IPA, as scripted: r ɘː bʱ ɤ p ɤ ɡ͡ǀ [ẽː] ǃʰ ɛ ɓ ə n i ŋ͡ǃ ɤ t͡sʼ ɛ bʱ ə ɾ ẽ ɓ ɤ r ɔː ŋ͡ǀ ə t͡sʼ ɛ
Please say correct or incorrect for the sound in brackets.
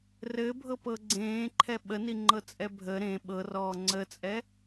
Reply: correct